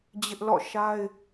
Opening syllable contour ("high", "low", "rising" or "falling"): high